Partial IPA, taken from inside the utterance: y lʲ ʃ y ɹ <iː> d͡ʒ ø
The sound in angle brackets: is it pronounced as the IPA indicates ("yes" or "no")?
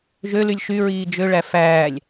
yes